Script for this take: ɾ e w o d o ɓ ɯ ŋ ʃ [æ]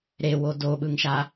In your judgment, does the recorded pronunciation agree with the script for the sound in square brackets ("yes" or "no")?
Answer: no